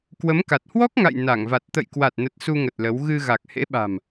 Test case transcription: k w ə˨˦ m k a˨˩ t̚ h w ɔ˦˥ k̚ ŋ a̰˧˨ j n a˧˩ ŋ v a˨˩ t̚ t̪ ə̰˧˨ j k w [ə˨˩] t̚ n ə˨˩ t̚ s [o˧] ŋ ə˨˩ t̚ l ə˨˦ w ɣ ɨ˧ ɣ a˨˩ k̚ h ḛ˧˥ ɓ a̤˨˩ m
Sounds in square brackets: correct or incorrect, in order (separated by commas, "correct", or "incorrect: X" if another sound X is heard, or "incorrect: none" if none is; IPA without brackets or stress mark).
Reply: incorrect: a˨˩, incorrect: u˧